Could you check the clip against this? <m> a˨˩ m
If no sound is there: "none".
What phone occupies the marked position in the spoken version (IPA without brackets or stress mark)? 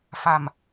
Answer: f